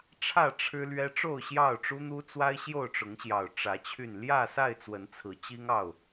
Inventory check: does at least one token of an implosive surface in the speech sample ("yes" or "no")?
no